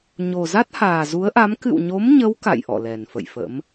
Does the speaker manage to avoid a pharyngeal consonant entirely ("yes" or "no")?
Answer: yes